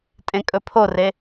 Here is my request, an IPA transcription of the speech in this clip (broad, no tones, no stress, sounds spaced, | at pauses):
tʼ ẽ kʼ ɵ pʰ o r e